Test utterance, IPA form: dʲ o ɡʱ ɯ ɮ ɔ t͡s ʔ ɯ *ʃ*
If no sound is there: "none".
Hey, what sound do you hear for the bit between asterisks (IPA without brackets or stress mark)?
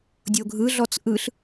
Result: ɬ